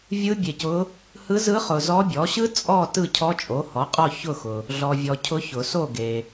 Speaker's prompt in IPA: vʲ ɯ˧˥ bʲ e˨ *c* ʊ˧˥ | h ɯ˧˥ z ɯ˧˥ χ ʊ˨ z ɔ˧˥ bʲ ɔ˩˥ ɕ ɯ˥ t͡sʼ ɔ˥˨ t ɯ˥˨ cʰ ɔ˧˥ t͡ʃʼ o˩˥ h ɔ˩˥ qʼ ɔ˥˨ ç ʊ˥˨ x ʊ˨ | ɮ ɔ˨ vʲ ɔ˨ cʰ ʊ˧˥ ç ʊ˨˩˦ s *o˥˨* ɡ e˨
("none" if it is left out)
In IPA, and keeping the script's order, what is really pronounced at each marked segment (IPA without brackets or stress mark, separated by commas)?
c, o˥˨